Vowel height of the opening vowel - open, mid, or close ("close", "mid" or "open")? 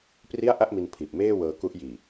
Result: close